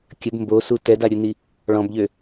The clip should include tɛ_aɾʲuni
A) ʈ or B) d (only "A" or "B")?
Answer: B